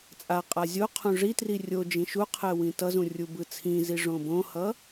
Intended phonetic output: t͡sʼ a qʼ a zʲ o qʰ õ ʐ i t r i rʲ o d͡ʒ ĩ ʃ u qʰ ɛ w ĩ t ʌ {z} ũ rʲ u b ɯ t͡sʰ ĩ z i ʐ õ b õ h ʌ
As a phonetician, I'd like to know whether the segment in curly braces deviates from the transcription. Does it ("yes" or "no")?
no